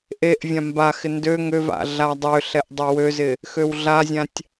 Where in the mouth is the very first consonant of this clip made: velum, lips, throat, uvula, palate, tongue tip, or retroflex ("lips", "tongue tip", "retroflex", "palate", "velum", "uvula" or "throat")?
throat